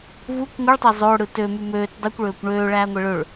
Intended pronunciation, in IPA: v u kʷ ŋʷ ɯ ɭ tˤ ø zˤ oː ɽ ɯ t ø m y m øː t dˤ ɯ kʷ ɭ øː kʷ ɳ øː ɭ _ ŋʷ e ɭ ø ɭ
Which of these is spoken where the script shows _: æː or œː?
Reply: æː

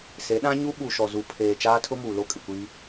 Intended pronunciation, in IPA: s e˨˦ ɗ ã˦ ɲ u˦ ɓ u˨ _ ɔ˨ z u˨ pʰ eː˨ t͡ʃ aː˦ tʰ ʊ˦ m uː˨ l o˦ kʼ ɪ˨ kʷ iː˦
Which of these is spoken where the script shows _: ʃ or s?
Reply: ʃ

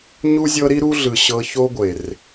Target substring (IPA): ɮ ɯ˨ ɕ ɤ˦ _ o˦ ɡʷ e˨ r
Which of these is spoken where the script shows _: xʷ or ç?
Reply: ç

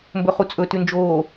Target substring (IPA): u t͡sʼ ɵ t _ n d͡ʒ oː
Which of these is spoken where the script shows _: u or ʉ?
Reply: ʉ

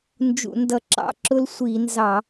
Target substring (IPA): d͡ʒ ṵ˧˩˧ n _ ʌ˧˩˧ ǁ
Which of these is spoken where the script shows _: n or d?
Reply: d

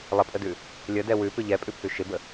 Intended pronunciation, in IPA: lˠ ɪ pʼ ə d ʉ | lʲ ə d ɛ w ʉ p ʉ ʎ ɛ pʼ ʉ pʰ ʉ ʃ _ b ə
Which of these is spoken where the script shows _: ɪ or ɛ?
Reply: ɪ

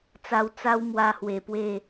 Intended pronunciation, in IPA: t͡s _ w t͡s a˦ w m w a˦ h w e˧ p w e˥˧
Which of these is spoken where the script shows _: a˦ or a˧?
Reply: a˧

